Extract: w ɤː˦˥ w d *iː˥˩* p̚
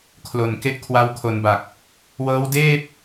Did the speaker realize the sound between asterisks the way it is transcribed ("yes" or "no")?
no